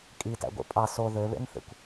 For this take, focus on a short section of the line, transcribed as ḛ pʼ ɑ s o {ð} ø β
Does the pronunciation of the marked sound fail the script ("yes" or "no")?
no